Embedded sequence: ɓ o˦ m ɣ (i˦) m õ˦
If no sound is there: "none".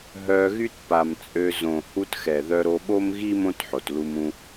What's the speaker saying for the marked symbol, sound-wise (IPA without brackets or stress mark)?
i˦